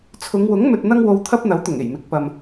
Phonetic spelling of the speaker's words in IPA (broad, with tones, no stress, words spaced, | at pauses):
t͡sʰʊ˨˧ŋwʊ˨˥ŋ mɵ˧t̚n̪ɐ˥ŋwo˧w t̪ʰɐ˥p̚n̪ɐ˨˥wt̪ʊ˨˩ŋ e˨˩jmɪ˨˥k̚ pɐ˨m